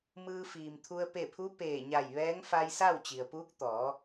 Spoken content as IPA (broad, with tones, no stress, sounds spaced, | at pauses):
m ɯː˧ f iː˩ m t̪ʰ u˧ ə̯ p e˧˩ pʰ u˧˥ p eː˧˩ ɲ a˧˩ j ʋ ɛː˧˥ ŋ f a˧ j s a˥˨ w t͡ɕ i˩ ə̯ p uː˧˥ k̚ t̪ ɔː˩˧